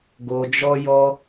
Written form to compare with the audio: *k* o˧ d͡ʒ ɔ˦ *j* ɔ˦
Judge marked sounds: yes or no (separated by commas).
no, yes